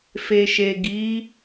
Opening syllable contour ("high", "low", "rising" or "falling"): low